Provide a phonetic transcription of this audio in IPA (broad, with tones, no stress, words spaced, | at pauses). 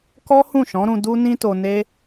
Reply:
kɔ˦hũ˦˨ʃɔ̃˨˦ɾũ˧ du˦nĩ˦to˧ne˦